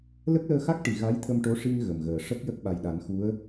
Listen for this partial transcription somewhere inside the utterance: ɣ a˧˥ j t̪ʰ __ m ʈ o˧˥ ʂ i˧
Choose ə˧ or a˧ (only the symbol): ə˧